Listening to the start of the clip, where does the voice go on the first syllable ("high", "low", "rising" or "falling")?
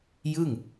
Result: falling